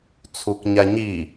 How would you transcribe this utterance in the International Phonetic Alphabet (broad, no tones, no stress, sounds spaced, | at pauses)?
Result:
t͡sʰ u k ɲ a ɲ i